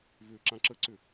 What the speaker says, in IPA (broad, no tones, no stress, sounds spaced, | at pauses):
v ʏː ǁ ã ǁ ə ǀ ʏ